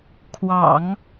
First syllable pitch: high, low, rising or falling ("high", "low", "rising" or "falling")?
low